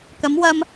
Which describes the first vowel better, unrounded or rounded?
unrounded